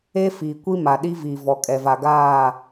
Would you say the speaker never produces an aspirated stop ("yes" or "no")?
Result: yes